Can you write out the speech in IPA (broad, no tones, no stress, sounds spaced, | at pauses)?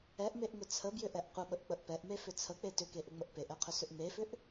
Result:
ɛ ʔ m e ʔ ŋ ʏ t͡sʰ ə b j ʏ ʔ ɛ ʔ qʷ ə ɓ ə ʔ k͡p ə ʔ p ɛ ʔ m e f ʏ t͡sʰ ə k͡p e t ʏ k e ʔ ʏ ŋ͡m ə ʔ p e ʔ ɛ qʰ ʏ s ʏ ʔ m e f ʏ ʔ